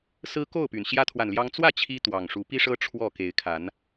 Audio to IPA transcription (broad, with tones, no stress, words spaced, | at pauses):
sɹ̩˦ ko˥˨ʊ̯py˩n ɕjä˦t̪ʰwa˨nljɑ˦ŋ t͡swä˥˨ t͡ɕʰi˦t̪wɑ˨˩ŋ ʂu˨˦pi˦ʂɤ˦ ʈ͡ʂʰwɔ˥˨ ke˨˦ɪ̯kʰa˨˦n